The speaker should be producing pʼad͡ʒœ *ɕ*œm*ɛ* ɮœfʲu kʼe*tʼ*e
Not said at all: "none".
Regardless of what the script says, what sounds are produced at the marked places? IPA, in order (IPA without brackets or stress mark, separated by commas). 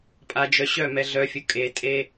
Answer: ɕ, ɛ, tʼ